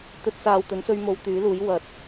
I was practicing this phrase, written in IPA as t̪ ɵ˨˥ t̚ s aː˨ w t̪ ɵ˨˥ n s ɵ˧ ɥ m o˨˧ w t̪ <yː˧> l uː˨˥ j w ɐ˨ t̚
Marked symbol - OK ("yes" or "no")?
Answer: no